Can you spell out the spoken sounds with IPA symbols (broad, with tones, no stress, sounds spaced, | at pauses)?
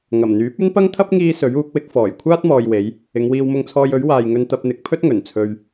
ŋ ɐ˨˩ m n̪ yː˨˥ p̚ ɵ˥ n p ɐ˥ ŋ t̪ʰ ɐ˥ p̚ ŋ iː˧ s ɵ˨˥ ɥ uː˨˥ k̚ w ɪ˨˥ k̚ f ɔː˨˩ j kʷʰ aː˥ t̚ m ɔː˨ j w e˨˧ j | ɪ˨˧ ŋ w iː˧ w m ʊ˧ ŋ t͡sʰ ɔː˧ j ɵ˨˥ ɥ w aː˨ j ŋ ɵ˧ n t̪ ɐ˧ p̚ n̪ ɪ˨˥ k̚ pʰ ɵ˥ t̚ ŋ ɵ˨˩ n t͡sʰ ɵ˧ ɥ